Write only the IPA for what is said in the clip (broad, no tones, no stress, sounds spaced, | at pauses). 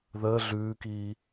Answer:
ð əː ɮ ʉː k iː